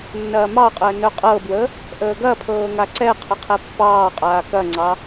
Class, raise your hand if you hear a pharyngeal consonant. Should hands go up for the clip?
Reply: no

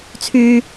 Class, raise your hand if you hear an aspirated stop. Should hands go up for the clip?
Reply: yes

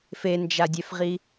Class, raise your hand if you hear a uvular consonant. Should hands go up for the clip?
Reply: yes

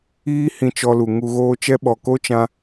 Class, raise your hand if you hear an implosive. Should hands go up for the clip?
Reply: yes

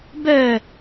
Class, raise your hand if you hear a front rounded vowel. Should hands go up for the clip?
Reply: yes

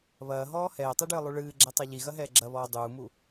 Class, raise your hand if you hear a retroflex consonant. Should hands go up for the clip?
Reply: yes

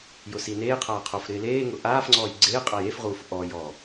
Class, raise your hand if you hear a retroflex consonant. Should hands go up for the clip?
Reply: no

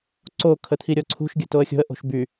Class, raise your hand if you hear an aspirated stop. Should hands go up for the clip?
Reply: yes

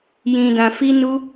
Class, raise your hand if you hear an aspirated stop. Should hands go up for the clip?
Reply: no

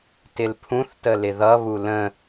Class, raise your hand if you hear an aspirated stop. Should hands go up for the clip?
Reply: yes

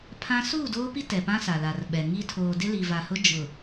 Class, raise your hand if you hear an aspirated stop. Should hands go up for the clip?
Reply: yes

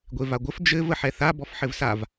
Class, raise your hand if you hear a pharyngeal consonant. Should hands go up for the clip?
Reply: yes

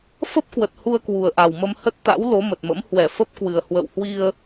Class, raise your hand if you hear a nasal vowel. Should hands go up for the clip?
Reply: no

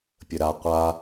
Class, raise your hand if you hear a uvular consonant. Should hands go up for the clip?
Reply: yes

